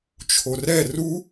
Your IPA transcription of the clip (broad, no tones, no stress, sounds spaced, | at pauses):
t͡ʃʰ o r ɛ r u